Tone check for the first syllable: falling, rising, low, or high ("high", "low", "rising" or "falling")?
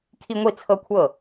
high